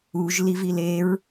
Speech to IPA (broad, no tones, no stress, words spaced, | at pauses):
uʒ livileɹ